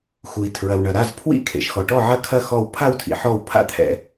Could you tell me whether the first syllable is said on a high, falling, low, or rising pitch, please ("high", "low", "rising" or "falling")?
low